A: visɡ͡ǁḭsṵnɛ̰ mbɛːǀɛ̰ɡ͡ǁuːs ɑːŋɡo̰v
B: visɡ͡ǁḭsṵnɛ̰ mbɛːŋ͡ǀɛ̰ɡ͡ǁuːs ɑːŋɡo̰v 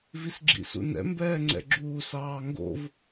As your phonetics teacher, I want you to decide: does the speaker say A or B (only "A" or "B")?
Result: B